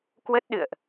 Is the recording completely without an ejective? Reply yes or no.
yes